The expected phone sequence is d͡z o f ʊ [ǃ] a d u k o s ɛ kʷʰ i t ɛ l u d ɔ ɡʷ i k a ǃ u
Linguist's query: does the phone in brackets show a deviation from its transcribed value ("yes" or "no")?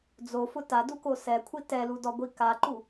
yes